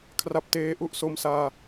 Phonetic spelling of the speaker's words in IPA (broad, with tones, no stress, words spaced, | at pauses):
kʰra˦˥p̚teː˦˥ ʔu˦˥ʔso˦˥msaː˧